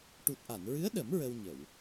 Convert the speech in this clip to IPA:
ʈu˨˩t̚ʔa˨˩˨nɹɨ˧˥ə̯ɗə˨˩˦m ɹə˧wɲə˨˩˨w

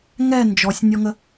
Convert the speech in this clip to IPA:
ŋɛ nd͡ʒɔsʲnʲɔŋə

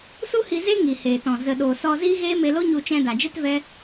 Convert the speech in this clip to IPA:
su˦hi˧ze˦ ŋi˨heː˨tɔ̃˨ zə˨ɗoː˨ sɔ˧ziː˦ɣeː˦ me˧lo˦ɲu˧ t͡ʃɛ̃˧da˨d͡ʒe˦tvɛ˦

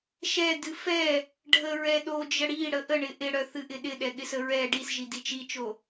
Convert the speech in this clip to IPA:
ʃɛdɨ fɛ | ɖʱəɹɛ ɗo d͡ʒəɽiɽə ʔəɳɪ ʔɪɽœ θɨʔɪɗɪ ɗɛɠɪsəɹɛ ɖisʒi dit͡ʃit͡ʃo

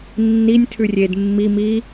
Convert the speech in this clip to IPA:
nːinʲ tʰʉrʲed mːi mi

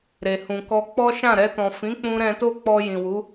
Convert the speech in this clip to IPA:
ɾe˨ hũ˨kɔ˧ k͡pɔ˦ʃã˦˨ɾɛ˧tɔ̃˨ fĩ˨˦k͡pũ˧ɾɛ̃˧to˦ k͡pɔ˧jĩ˨wu˨˦

